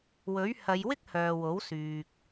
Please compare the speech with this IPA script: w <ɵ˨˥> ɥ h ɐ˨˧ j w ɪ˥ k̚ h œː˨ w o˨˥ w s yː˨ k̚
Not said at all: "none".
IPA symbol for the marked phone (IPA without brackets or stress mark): ɵ˨˥